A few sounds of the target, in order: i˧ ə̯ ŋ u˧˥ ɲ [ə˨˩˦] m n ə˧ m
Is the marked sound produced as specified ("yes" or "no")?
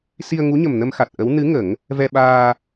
no